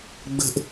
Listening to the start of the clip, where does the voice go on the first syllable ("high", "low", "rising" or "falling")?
falling